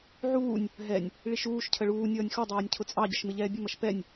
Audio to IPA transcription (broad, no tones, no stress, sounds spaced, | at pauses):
ʕ uː nʲ | ɦ ɛ nʲ | ɭ i ʃ uː ʃ cʰ ə ɭ uː nʲ ʌː nʲ x ɔ dˤ ɛː nʲ cʰ ʊ t͡sʼ ɑ ɟ ə ʃ m ɪ ʎ ɛː bʲ ʊ m ʌ ʃ p ɛ nʲ